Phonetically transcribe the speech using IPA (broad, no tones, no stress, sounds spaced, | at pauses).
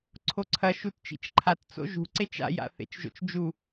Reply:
ǀʰ o ǀʰ ɐ ʃ u t t͡ʃ ḭ t͡ʃ ǃʰ a t t͡s o̰ ʒ ṳ ǀ e t͡ʃ a̰ j a̰ θ ḛ t͡ʃ ʒ o̰ t͡ʃ d͡ʒ u